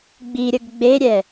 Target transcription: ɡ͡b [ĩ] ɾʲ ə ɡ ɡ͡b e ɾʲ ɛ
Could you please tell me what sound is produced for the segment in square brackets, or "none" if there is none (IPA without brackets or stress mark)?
i